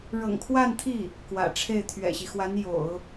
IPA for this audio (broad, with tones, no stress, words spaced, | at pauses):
ɻɤ̰˨˩ŋkʰwa˥˧nt̪ʰi˥˩ | kwä̰˨˩ ʈ͡ʂʰe˥˩ɪ̯t̪ʰɥɛ̰˨˩ɕi˦ xwa˧˥n jo̰˨˩˦ʊ̯